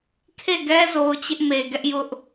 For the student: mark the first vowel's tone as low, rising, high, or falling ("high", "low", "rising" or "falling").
falling